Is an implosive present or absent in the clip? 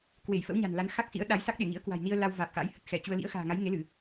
present